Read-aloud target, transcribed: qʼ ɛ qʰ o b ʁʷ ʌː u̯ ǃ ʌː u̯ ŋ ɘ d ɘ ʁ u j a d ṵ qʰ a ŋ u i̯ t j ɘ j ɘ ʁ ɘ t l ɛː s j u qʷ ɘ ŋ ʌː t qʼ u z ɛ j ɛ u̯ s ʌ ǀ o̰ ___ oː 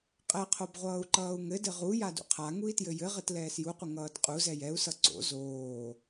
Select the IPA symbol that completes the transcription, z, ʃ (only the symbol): z